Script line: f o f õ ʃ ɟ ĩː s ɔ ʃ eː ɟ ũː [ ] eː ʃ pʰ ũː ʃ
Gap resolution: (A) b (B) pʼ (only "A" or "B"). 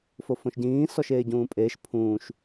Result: B